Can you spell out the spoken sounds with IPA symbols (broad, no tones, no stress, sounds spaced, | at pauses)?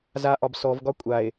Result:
z a ʔ ɒ b s ɔ v ɡ ɒ kʷʼ a e̯